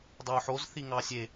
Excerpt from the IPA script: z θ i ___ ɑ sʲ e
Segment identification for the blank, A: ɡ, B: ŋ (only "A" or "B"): B